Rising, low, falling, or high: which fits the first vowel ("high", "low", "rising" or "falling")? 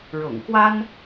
low